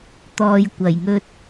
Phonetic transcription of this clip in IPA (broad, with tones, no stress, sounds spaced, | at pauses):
t̪ ɔː˨ j kʷ ɐ˨˩ j ŋ ɵ˧ t̚